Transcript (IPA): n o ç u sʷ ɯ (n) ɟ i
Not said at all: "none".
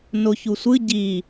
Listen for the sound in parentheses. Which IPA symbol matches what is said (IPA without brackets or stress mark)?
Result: none